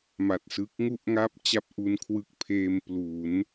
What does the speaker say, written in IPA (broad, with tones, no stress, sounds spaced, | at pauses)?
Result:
m a˨˩ t̚ s ɯ˦˥ k̚ ŋ u˥˩ ʔ ŋ a˥˩ p̚ t͡ɕ a˦˥ p̚ ʔ u˧ n kʰ w ɯ˦˥ k̚ pʰ eː˧ m p l u˩˦ n